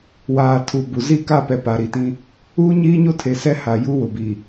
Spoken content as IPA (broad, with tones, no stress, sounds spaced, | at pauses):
w aː˨ tʰ u˨ b u˨ z iː˦ k a˦˨ p ɛ˨ p a˨ ɾ i˨ t ĩ˦ | uː˦ ɲ iː˦ ɲ o˦ tʰ e˨ s ɛ˦ h a˨ j u˦ w ʊ˨ b iː˨